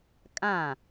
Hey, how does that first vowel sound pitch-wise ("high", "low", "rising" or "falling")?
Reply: falling